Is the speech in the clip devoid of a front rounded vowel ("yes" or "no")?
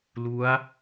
yes